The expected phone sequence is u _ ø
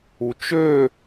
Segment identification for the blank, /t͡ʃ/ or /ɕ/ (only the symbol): t͡ʃ